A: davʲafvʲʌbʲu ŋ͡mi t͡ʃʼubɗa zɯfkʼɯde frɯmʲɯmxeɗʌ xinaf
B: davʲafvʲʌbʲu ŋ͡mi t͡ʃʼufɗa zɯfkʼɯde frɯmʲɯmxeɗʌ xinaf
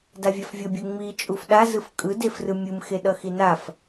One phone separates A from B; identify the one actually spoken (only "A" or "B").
B